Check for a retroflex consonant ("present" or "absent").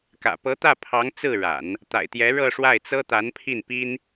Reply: present